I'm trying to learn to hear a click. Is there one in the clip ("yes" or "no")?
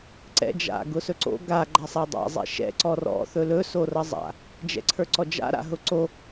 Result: yes